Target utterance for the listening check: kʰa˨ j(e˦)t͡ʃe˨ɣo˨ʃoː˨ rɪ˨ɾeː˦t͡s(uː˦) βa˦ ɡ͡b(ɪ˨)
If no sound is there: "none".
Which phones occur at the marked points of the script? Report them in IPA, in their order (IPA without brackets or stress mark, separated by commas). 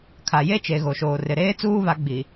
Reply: e˦, uː˦, i˨